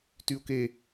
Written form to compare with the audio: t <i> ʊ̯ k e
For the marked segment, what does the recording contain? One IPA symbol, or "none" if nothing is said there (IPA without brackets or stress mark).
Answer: y